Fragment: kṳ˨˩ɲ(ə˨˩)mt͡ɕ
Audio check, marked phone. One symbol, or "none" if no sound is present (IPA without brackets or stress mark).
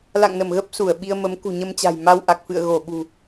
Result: ə˧